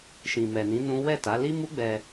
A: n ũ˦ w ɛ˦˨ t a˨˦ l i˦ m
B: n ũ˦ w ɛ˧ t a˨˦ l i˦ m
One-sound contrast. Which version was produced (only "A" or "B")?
A